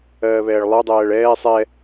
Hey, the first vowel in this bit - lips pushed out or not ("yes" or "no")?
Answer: no